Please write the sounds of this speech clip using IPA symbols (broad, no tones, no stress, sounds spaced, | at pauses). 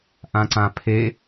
ʔ ã ǀ ã pʰ e